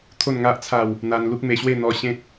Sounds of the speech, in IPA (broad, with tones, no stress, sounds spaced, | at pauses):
t̪ʰ o˥˧ n ŋ a˦ ʔ t͡sʰ a˥˧ w | n̪ a˧ n l u˦ k̚ m e˧ ɕ w e˥˧ n̪ ɔ˧ ɕ ẽ˦ t̚